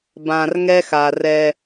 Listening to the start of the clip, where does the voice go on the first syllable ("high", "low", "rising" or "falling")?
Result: low